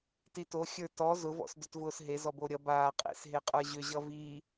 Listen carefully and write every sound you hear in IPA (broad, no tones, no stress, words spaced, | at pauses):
tito xʲə˞tɔ zʊ vɔ̰sdʏtvʊːsɦe zɔboɾʲʌ baː qʼḛsɦeqʼə˞ʑʏ ʑʌviː